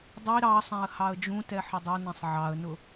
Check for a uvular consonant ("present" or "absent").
absent